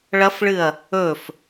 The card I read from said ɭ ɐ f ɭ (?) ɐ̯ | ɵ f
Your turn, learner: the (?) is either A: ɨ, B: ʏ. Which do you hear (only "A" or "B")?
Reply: A